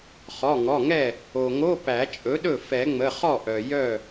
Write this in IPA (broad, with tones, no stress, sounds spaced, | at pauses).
χ ɔ˩˧˩ ŋ ɔ˩˧˩ ŋ ɛ˥˩ | o˩ ŋ o˧˥˧ p æ˨˩˦ t͡ʃʼ ɵ˩˥ ɗ ɵ˥˩ f ɛ˨˩˦ ŋ͡m ə˩˧˩ χ ɔ˥˩ ʔ œ˩ j œ˥˩